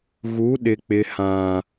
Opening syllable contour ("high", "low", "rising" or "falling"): rising